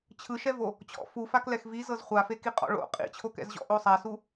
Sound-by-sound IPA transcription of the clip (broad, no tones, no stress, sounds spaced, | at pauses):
t͡ɕʰ ɯ ʃ ɛ v o | t͡ɕʰ ɔ̰ f u f a k l ɛ x v i z ɤ z χʷ a f e k i qʼ ɔ̰ ɭ o̰ qʼ ḭ t͡ɕʰ o k ɛ̰ z ʑ ɔ̰ ʔ o sˤ a s u